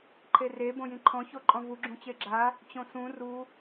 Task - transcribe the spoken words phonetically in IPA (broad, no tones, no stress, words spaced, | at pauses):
ǃʰere bõjĩǃʰɔ̃ çoǃʼɔ̃vu ɡ͡ǁũt͡ɕeɡ͡ǁa | t͡ɕõsũ ru